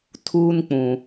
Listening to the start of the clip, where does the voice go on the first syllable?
high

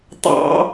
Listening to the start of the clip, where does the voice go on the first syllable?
high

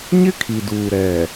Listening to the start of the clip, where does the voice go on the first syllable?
high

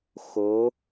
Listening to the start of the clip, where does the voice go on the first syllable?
rising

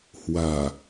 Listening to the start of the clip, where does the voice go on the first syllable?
low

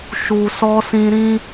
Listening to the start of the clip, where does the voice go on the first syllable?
low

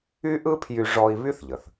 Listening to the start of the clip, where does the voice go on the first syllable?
high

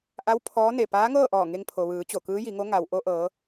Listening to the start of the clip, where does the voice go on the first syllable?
rising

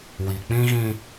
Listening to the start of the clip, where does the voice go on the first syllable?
low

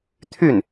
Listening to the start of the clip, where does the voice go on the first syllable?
falling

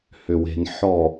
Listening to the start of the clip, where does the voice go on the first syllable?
low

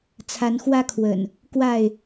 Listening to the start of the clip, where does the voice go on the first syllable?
rising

